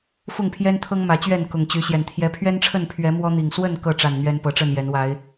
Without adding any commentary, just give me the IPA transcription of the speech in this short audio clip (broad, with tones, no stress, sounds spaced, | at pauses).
f ʊ˥˨ ŋ pʰ j ɛ˦ n t̪ʰ ɤ˦ ŋ m ä˨˦ t͡ɕ ɥ ɛ˥˨ n k ʊ˨˩ ŋ t͡ɕ y˨˦ ɕ j ɛ˨˩ n t̪ʰ j ɛ˨˦ pʰ ɥ ɛ˦ n ʈ͡ʂʰ ə˥˨ n pʰ ɥ ɛ˨˦ m w ɔ˦ n̪ i˨˩ ŋ s w ə˥˨ n k ɤ˥˨ ʈ͡ʂ a˨˩ n n̪ ɥ ɛ˦ n p ɤ˨˦ ʈ͡ʂ ə˥˨ n j ɛ˨˦ n w a˨˦ ɪ̯